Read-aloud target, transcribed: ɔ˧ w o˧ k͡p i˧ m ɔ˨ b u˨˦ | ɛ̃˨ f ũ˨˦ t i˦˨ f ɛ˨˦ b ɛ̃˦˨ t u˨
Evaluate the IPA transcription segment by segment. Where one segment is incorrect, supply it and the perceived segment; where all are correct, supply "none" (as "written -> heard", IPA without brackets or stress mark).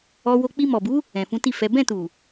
none